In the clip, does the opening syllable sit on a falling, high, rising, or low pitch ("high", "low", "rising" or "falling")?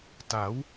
rising